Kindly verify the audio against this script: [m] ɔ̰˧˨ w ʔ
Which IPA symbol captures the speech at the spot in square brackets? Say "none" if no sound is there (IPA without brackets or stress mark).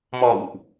m